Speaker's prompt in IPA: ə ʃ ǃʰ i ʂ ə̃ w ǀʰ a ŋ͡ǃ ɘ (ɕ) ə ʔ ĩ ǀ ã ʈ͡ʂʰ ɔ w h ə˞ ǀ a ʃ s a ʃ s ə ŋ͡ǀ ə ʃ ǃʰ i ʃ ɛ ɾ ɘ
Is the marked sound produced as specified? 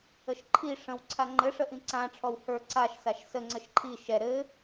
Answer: no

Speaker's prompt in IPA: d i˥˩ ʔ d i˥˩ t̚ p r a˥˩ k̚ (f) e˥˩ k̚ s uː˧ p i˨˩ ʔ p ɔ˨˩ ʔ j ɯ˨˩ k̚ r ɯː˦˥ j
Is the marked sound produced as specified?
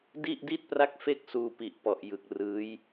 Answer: yes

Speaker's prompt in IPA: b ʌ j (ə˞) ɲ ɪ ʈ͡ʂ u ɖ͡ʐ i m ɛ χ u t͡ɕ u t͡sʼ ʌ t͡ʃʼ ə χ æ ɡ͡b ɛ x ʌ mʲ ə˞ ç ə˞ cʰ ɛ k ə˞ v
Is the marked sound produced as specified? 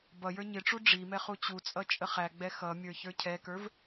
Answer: yes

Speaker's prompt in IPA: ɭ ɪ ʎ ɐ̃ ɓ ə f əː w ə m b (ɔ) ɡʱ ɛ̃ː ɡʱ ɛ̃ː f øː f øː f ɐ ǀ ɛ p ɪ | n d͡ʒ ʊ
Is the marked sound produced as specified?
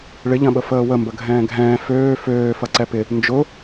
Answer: no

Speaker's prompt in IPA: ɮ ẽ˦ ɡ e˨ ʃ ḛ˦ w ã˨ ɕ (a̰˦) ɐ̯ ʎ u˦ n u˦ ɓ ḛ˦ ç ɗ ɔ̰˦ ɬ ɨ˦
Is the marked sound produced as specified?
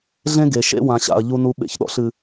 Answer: no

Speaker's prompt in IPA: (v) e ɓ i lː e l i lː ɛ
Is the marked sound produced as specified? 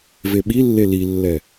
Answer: yes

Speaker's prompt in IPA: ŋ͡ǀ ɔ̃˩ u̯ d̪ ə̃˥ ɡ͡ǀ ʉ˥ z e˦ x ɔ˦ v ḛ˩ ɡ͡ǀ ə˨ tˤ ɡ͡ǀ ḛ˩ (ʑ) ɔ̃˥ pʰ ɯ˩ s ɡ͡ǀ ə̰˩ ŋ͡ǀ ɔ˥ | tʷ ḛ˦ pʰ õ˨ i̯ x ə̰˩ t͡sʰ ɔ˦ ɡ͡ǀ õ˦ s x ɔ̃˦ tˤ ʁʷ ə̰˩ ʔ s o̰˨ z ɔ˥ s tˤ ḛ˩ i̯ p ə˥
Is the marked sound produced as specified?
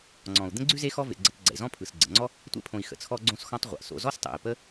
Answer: no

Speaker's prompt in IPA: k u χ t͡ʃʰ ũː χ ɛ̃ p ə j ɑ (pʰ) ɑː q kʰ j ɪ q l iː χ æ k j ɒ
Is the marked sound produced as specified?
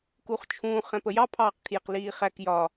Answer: yes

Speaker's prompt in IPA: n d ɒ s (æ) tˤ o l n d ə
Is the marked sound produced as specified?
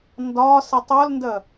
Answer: no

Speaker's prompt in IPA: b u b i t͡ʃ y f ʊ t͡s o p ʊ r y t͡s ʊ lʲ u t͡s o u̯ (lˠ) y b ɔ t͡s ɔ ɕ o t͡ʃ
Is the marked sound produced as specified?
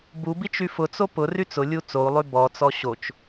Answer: yes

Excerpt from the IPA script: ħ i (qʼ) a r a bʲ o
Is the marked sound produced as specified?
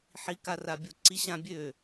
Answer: no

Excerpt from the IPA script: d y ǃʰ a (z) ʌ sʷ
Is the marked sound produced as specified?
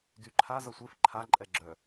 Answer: yes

